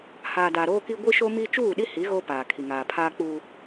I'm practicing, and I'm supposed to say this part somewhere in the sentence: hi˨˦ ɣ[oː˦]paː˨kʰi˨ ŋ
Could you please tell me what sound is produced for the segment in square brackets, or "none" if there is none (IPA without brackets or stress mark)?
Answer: oː˦